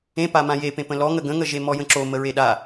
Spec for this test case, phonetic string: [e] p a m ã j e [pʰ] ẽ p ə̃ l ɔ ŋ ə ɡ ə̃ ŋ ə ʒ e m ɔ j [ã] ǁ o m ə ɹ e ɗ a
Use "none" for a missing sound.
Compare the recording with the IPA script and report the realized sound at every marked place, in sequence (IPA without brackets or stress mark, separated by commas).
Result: ẽ, p, ə̃